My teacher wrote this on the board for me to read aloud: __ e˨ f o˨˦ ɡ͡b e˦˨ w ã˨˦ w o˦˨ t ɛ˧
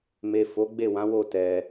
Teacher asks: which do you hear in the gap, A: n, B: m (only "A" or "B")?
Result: B